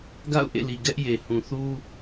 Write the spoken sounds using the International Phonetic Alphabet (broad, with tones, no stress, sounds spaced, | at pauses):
ɡ a̰˦˨ ʊ̯ ʔ ḛ˦˨ l i˨ ɡ ɛ˦ ʔ j e˨ h ũ˨ θ u˦